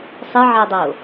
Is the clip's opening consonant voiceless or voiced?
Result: voiceless